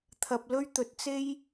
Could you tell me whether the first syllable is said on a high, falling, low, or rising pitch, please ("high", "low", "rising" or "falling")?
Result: low